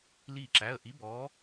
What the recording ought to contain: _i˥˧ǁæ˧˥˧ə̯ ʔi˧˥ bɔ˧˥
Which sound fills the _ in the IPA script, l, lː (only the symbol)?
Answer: l